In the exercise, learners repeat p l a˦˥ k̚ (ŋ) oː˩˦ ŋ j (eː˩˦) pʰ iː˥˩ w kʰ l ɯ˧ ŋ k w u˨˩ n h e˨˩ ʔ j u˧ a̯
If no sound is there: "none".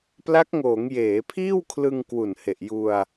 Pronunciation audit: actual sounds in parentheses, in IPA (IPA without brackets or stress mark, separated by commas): ŋ, eː˩˦